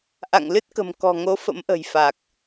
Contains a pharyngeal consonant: no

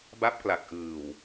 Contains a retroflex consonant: no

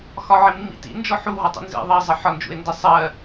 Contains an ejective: no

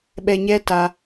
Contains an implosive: yes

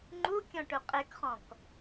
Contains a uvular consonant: yes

